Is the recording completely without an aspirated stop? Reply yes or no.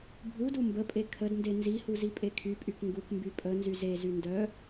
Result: no